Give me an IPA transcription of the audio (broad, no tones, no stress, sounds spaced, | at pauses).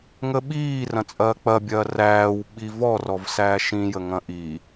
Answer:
ŋ ə ɓ iː r ɐ̃ t͡sʼ ɐː k͡p ɐ bʲ ɐː r æː w ɓ i v ɔ r ɔ v s æː ʃ ĩ j ə ŋ ɐ̃ ʔ i